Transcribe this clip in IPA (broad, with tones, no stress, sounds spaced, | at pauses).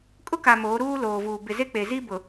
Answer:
kʼ ʊ˦ k a˨ m oː˨˦ ɾ uː˦ l oː˨ v uː˨ b ɪ˨ z e˦ k͡p e˨ z i˦ b ʊ˨